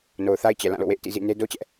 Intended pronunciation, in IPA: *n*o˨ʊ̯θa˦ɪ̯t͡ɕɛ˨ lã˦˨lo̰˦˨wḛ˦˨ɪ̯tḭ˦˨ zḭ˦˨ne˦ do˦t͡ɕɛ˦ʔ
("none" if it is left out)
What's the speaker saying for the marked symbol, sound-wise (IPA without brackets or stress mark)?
n